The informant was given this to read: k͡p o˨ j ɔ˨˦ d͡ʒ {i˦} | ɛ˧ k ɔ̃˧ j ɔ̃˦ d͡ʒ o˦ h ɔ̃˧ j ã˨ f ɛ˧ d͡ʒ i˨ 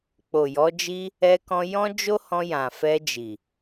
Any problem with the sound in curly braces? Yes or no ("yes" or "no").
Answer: no